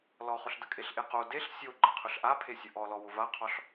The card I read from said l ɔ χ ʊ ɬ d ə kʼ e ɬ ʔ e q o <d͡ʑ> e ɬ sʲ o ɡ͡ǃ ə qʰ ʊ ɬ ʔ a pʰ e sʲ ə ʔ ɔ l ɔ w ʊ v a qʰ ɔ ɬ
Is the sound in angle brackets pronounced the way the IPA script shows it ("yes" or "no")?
no